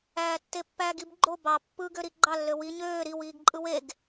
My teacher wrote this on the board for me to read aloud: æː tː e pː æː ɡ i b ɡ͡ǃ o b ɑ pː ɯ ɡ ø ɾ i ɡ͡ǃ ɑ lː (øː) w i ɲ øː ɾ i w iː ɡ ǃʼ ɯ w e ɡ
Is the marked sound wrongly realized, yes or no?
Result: yes